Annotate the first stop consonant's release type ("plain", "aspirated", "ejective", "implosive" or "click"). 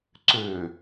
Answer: click